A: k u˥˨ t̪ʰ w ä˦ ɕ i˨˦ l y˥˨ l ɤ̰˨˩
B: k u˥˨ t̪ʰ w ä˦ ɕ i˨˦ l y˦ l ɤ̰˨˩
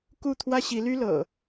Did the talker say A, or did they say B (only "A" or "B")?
B